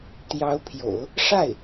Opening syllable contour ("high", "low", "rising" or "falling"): rising